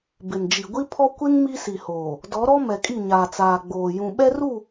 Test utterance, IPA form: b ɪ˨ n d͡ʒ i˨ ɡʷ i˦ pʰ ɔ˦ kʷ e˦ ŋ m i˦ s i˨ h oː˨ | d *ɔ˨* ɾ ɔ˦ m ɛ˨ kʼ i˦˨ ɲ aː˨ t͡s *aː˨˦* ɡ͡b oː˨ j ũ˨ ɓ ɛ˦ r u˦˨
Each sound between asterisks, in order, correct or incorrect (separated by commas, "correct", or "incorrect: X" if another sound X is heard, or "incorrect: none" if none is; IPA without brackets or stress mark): incorrect: ɔ˨˦, incorrect: aː˨